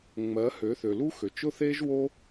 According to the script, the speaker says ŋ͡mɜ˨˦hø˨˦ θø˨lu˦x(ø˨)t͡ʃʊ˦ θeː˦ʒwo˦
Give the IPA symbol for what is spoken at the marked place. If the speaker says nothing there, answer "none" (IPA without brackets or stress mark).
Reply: ø˨